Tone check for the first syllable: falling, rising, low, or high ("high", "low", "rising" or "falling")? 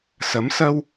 rising